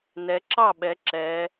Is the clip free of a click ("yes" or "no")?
no